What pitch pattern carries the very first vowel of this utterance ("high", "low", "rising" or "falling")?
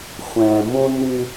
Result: low